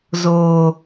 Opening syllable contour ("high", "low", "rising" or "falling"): low